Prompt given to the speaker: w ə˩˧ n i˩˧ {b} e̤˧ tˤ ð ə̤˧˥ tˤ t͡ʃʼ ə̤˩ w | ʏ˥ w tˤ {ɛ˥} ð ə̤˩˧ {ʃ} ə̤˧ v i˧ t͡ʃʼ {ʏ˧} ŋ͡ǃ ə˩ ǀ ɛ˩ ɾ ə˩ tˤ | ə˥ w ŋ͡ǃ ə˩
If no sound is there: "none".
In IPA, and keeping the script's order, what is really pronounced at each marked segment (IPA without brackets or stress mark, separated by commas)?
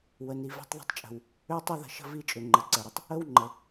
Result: v, ɛ˥, ʃ, ʏ˩